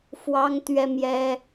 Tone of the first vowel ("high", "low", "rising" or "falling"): high